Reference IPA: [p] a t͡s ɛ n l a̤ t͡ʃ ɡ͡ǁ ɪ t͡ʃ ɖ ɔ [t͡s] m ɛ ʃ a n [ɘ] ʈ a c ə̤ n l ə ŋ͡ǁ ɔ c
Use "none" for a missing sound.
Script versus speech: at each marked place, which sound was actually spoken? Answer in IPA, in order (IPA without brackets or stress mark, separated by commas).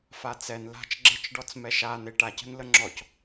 f, t͡s, e